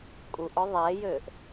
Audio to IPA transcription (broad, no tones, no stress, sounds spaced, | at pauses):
kʼ u ʔ ɔ ðˤ ɛ j øː ʔ